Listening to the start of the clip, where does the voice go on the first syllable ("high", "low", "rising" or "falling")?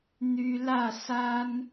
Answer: high